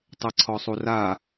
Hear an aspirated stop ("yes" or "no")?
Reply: yes